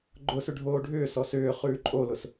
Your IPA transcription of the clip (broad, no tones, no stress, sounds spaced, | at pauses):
ɡ͡ǃ ʊ s ʏ ɖʱ oː ɖʱ ʏː s ɔ s ʏː χ ʉː ǃʼ o l ʊ s